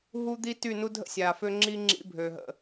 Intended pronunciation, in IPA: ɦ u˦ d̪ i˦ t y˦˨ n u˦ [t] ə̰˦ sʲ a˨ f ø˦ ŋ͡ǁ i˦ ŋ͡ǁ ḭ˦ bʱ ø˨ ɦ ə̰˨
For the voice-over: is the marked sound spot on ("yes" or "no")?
no